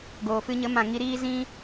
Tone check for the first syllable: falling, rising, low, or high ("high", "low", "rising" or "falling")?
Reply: low